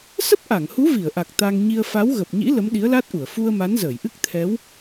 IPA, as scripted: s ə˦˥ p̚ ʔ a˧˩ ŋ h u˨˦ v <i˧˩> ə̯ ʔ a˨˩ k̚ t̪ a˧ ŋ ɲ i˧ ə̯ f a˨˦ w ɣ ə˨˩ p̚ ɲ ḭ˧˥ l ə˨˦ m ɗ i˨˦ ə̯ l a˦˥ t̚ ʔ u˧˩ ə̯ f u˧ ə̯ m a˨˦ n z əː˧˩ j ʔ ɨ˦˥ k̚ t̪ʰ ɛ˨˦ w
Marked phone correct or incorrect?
correct